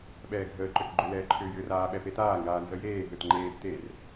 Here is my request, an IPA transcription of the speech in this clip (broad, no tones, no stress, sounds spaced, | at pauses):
ɓ ɛː ɡʱ əː ǃ ø k ɡ͡ǃ ʏ l ɛː ǃʰ ʏː j ʏː r aː ɓ ɛ p e t aː ŋ ɡ aː n z ə j eː ɦ ø t ŋ͡ǃ eː b t e r